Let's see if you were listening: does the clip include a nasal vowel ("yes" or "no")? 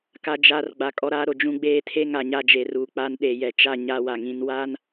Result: yes